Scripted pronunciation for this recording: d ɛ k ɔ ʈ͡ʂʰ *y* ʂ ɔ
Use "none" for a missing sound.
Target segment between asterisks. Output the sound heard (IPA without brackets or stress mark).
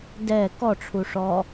u